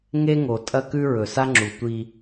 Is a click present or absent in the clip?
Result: present